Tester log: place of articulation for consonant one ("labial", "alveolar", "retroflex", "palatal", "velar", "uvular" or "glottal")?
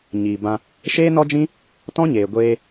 palatal